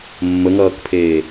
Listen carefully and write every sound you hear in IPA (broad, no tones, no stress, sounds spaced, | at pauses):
mː ə ŋ ʌː k pʰ eː